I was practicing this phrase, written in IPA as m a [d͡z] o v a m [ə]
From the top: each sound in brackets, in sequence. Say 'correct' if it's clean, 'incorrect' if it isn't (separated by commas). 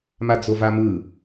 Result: correct, incorrect